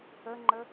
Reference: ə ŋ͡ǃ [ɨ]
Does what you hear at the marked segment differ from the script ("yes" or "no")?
yes